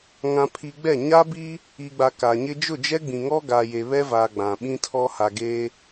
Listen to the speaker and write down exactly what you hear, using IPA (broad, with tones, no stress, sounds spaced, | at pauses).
ŋ ã˨ pʰ i˨ ɡ͡b ɛ˦˨ ɲ a˦ b i˦ | i˨ ɡ͡b a˨ k a˨ ɲ ɪ˦ d͡ʒ ʊ˦˨ d͡ʒ ɛ˦ ɡ͡b ĩ˨ ŋ ɔ˦ ɡ aː˨ j e˨ β ɛ˦ v a˨ ɡ͡b ã˨ ɓ ĩ˦ tʰ ɔ˦ h a˨ ɡ eː˦